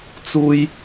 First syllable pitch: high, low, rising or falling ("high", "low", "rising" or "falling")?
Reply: high